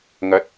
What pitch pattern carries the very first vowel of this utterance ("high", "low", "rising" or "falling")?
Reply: rising